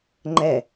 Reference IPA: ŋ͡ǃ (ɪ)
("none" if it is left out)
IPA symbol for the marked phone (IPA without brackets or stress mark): ɛ